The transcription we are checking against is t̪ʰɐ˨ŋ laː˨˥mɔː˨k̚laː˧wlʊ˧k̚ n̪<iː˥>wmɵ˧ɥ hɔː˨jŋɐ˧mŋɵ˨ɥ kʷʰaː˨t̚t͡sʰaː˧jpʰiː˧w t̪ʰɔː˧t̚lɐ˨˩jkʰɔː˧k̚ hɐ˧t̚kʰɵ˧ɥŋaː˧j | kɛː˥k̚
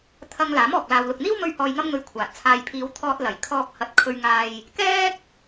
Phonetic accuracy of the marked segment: correct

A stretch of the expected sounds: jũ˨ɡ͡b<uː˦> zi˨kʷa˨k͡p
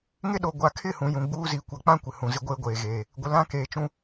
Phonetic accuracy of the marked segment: correct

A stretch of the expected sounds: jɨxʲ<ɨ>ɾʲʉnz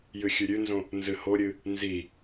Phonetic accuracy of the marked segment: incorrect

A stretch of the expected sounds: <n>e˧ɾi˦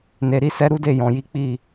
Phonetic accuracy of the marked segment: correct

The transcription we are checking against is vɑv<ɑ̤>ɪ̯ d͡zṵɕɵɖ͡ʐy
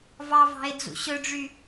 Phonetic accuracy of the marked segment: correct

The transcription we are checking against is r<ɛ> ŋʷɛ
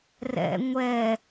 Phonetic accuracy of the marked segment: incorrect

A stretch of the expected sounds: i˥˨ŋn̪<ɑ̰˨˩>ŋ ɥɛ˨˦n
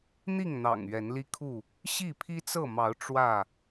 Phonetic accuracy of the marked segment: correct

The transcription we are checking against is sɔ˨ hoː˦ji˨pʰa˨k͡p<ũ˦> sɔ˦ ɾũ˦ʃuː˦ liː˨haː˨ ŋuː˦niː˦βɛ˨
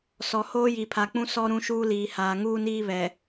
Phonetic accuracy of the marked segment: correct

